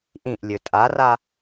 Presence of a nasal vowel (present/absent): present